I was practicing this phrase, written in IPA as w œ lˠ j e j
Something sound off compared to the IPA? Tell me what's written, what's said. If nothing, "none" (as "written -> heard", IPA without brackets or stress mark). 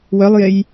none